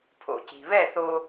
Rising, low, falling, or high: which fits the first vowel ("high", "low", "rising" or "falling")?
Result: low